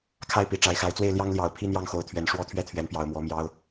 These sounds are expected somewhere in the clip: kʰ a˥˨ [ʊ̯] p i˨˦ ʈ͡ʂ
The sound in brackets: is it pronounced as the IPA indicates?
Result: no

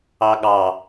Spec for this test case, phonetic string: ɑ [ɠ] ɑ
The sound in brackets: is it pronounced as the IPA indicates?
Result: yes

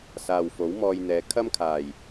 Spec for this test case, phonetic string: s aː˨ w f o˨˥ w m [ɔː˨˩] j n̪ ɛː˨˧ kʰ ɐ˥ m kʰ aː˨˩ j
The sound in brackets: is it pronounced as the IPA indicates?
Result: no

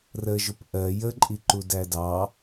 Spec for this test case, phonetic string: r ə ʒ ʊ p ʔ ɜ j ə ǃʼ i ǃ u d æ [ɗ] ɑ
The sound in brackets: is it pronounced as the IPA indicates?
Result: no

